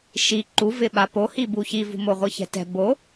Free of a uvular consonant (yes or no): no